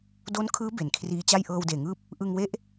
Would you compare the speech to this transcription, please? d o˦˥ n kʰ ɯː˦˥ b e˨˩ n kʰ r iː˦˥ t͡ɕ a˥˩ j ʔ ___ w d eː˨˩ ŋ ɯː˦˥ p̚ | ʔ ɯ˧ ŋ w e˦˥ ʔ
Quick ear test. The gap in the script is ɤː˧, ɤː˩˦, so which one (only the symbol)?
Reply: ɤː˧